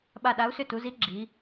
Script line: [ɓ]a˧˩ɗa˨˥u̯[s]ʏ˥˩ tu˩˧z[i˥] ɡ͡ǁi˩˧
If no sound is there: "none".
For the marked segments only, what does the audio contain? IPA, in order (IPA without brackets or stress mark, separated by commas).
ɓ, s, i˨˥